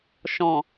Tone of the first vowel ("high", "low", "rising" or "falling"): low